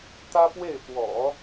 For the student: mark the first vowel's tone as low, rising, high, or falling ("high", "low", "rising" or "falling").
high